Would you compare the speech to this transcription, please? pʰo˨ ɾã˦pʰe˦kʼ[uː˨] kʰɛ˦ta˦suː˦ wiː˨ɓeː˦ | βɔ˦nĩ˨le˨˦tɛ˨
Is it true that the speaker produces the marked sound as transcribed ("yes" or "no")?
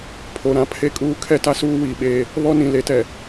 no